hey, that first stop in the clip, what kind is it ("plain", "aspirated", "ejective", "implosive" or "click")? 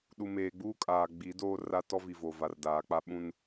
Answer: implosive